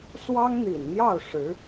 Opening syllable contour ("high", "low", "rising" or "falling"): high